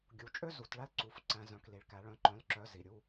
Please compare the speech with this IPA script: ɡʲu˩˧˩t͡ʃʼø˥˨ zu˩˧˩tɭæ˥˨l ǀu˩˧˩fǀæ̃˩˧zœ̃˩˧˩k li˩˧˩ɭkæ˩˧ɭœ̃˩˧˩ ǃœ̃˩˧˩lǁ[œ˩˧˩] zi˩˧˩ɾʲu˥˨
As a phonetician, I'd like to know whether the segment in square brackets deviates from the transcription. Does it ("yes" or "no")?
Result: no